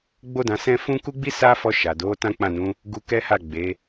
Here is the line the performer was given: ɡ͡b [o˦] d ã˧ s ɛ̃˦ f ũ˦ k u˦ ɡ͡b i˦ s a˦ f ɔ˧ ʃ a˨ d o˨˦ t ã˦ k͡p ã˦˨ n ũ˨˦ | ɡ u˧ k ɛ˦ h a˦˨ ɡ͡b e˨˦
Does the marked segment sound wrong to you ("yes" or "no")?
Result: no